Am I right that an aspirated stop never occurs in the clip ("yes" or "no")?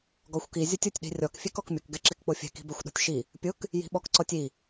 yes